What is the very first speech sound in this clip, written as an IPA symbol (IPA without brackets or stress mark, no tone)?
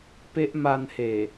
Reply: p